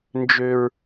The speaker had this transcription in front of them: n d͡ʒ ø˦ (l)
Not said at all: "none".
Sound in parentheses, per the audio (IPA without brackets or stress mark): ɹ